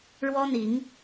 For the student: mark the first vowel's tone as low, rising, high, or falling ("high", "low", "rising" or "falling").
high